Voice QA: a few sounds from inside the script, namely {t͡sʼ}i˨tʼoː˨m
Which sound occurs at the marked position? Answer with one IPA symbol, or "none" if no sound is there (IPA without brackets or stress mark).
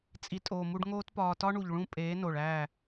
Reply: t͡sʼ